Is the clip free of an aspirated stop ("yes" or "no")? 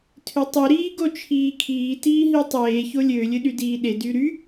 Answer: no